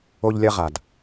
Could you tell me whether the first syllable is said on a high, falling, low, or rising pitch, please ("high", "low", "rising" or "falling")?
high